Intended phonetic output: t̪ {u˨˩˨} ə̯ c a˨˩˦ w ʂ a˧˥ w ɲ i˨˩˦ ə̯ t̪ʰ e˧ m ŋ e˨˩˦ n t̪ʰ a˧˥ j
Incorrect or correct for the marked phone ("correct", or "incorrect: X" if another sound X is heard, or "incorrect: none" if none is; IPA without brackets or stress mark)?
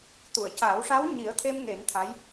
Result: correct